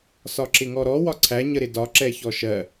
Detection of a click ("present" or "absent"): present